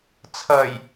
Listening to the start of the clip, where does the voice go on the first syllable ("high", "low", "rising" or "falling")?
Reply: low